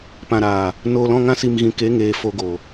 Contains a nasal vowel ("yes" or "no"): yes